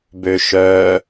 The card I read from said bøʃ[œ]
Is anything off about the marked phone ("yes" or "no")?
no